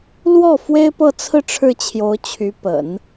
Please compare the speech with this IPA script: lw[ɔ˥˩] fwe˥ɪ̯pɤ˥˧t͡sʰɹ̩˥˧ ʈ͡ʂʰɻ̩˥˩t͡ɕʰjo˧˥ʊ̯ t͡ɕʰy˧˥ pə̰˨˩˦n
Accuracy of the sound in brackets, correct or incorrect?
correct